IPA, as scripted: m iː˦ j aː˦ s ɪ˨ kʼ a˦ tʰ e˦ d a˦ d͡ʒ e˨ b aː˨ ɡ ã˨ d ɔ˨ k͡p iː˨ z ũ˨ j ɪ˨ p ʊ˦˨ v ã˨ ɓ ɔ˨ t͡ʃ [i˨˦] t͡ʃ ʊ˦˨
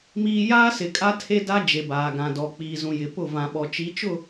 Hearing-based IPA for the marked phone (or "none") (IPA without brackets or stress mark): i˨˦